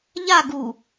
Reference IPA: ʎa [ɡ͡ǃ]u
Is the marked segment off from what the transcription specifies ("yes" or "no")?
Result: yes